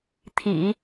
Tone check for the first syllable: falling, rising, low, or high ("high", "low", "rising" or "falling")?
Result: low